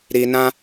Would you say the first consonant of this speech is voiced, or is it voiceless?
voiced